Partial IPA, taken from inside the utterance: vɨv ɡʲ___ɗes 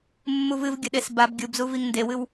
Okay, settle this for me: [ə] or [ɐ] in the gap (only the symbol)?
ɐ